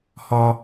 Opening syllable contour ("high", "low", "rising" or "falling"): high